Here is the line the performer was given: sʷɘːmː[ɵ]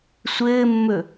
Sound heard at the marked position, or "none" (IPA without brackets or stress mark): ɵ